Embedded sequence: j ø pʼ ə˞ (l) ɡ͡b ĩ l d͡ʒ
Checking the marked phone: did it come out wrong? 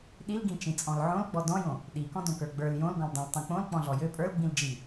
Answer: no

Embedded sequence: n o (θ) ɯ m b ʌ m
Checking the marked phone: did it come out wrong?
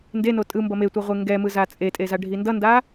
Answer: yes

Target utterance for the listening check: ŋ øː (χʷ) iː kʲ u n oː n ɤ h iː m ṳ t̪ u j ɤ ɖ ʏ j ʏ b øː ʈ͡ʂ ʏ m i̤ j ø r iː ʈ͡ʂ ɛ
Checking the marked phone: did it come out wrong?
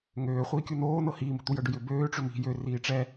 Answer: no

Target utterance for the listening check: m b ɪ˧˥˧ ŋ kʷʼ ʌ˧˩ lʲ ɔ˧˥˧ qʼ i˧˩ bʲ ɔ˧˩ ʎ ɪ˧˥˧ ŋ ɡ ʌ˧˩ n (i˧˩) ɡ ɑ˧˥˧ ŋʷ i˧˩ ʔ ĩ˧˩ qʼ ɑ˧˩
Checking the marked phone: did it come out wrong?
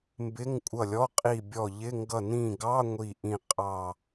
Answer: yes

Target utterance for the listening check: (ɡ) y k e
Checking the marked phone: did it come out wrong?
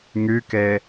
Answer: yes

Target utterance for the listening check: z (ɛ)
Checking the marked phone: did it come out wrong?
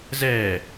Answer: no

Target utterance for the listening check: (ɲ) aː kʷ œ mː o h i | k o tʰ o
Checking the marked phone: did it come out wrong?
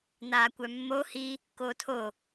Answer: yes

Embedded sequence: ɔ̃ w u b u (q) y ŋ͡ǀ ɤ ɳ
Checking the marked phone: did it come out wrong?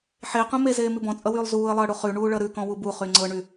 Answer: yes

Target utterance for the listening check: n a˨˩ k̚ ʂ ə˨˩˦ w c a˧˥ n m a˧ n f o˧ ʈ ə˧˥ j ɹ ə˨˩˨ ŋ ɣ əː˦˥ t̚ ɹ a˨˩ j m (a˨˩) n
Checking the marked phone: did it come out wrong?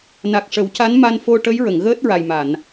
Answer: yes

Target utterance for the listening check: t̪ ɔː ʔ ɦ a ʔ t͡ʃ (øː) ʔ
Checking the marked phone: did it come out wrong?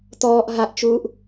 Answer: yes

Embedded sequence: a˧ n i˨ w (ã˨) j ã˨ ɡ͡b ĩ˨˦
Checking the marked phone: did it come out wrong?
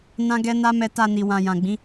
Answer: no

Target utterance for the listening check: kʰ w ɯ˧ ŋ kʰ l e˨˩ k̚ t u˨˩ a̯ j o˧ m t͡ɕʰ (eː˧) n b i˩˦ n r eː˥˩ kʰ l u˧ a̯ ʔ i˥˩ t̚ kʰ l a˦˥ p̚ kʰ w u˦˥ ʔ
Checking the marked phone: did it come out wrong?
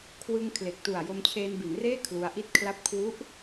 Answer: no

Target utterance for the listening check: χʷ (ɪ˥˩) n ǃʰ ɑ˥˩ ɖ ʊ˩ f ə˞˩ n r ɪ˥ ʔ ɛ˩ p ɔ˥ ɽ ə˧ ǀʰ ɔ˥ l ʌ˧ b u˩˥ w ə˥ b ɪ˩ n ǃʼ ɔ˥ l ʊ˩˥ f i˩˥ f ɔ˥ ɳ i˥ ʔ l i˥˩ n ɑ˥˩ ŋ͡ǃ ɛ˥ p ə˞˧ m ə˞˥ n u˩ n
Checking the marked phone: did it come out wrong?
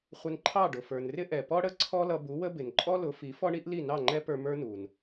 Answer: yes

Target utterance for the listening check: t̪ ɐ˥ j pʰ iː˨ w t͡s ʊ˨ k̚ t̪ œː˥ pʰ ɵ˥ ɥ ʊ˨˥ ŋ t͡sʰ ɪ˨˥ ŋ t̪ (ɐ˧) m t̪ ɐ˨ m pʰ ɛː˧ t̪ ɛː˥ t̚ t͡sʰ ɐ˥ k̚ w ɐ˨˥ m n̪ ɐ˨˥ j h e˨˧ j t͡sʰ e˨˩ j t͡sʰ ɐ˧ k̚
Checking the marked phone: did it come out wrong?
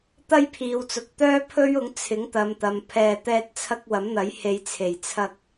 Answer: yes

